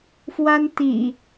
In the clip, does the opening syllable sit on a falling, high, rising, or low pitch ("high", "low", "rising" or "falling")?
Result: high